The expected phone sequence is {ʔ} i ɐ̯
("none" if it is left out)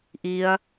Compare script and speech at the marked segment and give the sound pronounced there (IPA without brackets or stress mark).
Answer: ʔ